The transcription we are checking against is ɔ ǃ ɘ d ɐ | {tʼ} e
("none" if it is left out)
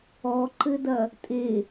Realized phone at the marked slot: tʼ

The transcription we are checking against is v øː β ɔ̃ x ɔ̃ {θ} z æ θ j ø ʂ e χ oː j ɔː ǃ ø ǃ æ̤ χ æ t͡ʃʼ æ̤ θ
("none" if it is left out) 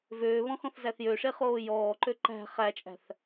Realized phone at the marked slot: θ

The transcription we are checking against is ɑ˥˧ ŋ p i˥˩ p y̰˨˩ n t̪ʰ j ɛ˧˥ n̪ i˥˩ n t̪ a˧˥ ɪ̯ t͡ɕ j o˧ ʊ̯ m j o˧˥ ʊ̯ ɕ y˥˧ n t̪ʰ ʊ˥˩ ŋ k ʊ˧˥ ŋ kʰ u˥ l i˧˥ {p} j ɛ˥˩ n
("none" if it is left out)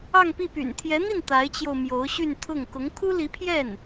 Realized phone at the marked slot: pʰ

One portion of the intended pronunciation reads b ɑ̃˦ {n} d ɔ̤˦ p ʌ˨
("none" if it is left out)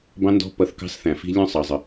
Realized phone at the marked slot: n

